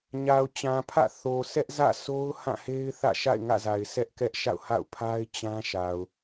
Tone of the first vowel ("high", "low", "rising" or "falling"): low